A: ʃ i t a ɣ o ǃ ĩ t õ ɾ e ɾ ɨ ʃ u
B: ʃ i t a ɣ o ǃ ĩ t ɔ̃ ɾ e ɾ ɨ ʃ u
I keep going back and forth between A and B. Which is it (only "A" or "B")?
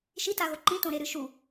A